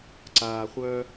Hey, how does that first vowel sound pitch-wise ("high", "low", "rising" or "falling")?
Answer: low